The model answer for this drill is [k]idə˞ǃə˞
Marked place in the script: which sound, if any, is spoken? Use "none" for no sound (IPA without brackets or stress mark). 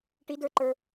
ʈ